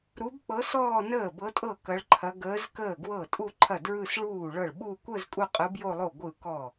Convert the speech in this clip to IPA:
ɾ u˧˥ b k͡p ɤ˧˥ s ɔː˥˧ n əː˥˩ b ɤ˧˥ tʼ ɤ˥˩ k ɐ˧˥ ɭ ǃʰ ɐ˧˥ ɡ əː˧˥ z k əː˥˩ ɡ w ɤ˥˩ tʼ u˥˧ ǃʰ ɐ˥˩ d ɹ ɯ˥˧ s ɭ uː˥˩ ɭ ɤ˥˩ ɭ ɓ u˥˧ kʷ ə˥˧ z kʼ u˥˧ qʼ ɯ˧˥ b j o˥˧ lˠ o˥˩ ɡʷ ɯ˥˩ k ɔ˥˩

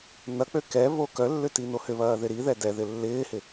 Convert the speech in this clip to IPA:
n ɐ k͡p ø k ɛ β o k œ lː ʏ t i n o h ʏ β ɐː ð ɪ ɾ i ð ɛ d ɛ ð ɪ lː ɪː h ɪ

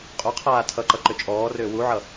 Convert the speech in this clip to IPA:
qʼ u qʰ aː tʰ ʌ ǃ ʌ ǃ ʏ t͡ʃʼ ɔː r ʏː w u ʕ ʌ

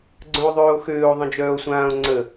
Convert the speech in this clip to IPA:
ɡ͡ǀ œ̃ o̯ ðˤ øː o̯ x øː o̯ ðˤ ə̃ d͡ʒ œː o̯ sʷ ãː o̯ ŋ͡ǀ ə

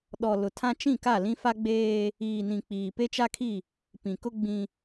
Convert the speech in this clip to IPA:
ɗ ɔ˨ l ʊ˨ tʰ ã˦ t͡ʃ ĩ˦˨ k a˦˨ l ĩ˦ f a˦ ɡ͡b eː˦ | iː˨ n ĩ˨ k͡p iː˨ p e˦ t͡ʃ a˦ kʰ i˦˨ | p ĩ˨ k ʊ˦ ɡ͡b ĩ˦

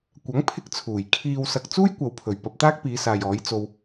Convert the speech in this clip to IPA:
kʷ ɐ˨˥ ŋ pʰ ɪ˧ k̚ t͡sʰ uː˨˩ j kʰ iː˨ w s ɐ˨ k̚ t͡s uː˥ j kʷ ɐ˨ w pʰ ɵ˨˩ ɥ p ɐ˧ p̚ t̪ aː˥ k̚ p iː˨˧ s aː˨ j ɔː˨˥ j t͡s o˧ w

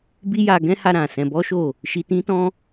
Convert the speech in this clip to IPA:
b i˦ j a˧ ɡ ɛ̃˦ h a˧ ɾ ã˨ s ɛ̃˧ b ɔ˦ ʃ o˦˨ | ʃ i˧ t ĩ˦ t ɔ̃˦

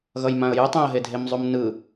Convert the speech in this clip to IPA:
ɣ ʌ j m ã ə̯ j ɯ tˤ ẽ ə̯ ɦ e dʱ e m zˤ u m n ɯ

